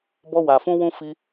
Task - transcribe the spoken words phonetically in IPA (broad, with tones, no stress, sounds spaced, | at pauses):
b ɔ˦ w a˧ f ũ˦ w ũ˦ f i˧